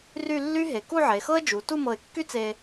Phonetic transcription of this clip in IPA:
ry˥˧lːy˥ɦe˩˧ ku˥˧ʕe˩˧xɤ˥ə̯d͡ʒu˩˧ tu˥˧mɤ˧˩ɪ̯kːy˥t͡se˧

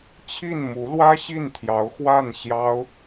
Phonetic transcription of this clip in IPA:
t͡ɕʰi˥˩n mu˧˥lwä˥ ɕi˥˩nt̪ʰjɑ˧˥ʊ̯xwa˥˩n ɕjɑ˥ʊ̯

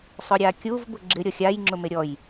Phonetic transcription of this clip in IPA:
sˤʊɾʲakʲuv bʊɡ͡ǁɪ ɾʲɔxʲaj ŋ͡ǁʊmeɾʲɔj

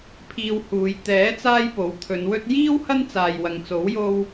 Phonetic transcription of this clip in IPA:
pʰiː˧whuː˨˧j t̪ɛː˨˥t͡saː˧j po˨˥wt̪ʰɵ˨˧nwɵ˥t̚ jiː˥w hɐ˥nt͡saː˨j wɐ˨˧ŋ t͡so˨˥wjo˧w

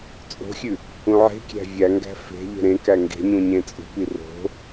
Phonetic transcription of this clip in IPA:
t͡sʼo̤xʲʉ | ũʕe̤kʲæ̤ vʲæŋɡæ̤ fe̤ʎe̤ ɾẽ kæŋɡe̤ɲũ ɲẽt͡sʼṳpi ro̤

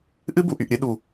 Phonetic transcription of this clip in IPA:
ʔɨ˦bu˨ʔy˨ʔɾʲɨ˧ ɗu˨

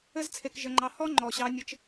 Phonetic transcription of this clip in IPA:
ɘ˦zt͡sʰe˧kʒɘ˧ŋ͡ǃɑ˧ hɔ˦ ŋ͡ǃɔ˨ɕɑ˧nʲɘ˧t͡ʃ

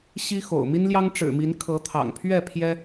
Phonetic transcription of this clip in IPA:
ɕi˦ xo̰˨˩ʊ̯mi˦nljɑ˦ŋ ʈ͡ʂɻ̩˨˩mi˨˦n kʰɤ˨˦t̪ʰɑ̰˨˩ŋpʰɥɛ˥˨ pʰjɛ˦

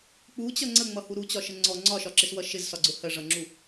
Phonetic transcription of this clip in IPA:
k͡put͡ɕʌ ŋ͡ǀəŋ͡mʌhu ɾut͡ɕɒʃə ŋ͡ǀɔ ŋ͡ǀɒʃɒǁɪswʌ ʃɪzsɒɡ͡ǀʊ hɜʐʌŋ͡ǁu

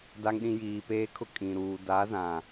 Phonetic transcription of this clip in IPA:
da˨ŋɗĩ˨ jiː˨peː˦kʰʊ˦ kʼĩ˨ɾuː˨ da˨˦zã˨

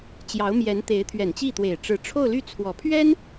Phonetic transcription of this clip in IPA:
t͡ɕjɑ˧˥ʊ̯mjɛ˧˥nt̪e˧˥ɪ̯ t̪ʰɥɛ˨˩nt͡ɕi˥˩t̪we˨˩ɪ̯ ʈ͡ʂɻ̩˧˥ʈ͡ʂʰo˥˧ʊ̯ly˥˩t͡sʰwɔ˨˩ pʰɥɛ˥n

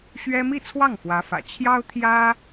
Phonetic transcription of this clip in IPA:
ɕɥɛ˥ mi˥˧t͡sʰwɑ˥˩ŋ fwä˧˥fä̰˨˩ t͡ɕʰjɑ˥ʊ̯t̪ʰjä˥

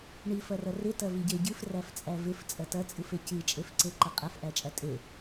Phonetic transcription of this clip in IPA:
ɳifɐrɐ rɪtɐ viɟeɟɨf ræft͡sʼævɪf t͡sʼɐtɐt͡sʼɨfe cɨt͡ʃʼefǀeǃɐ qʼɐfʔæt͡ʃʼæ tʼe

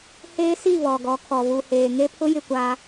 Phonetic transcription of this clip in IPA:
heː˦si˦˨ βɔ˨ɡɔ˨˦kʰɔ˨ βu˨heː˨ ŋe˦pʰʊ˦jɪ˦˨kʷaː˦

